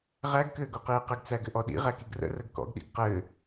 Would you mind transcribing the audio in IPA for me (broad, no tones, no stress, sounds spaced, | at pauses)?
ʁ æ ɡ k ɘː ɡ o q iː q ɘ ɡ t͡s æ ɡ ɘ ʔ ɔ ɗ ḭ ʁ æ k i ɡ r ə̰ r ə ɡ k ɔ̰ ɡ ɗ ḭ ɡ q ɘː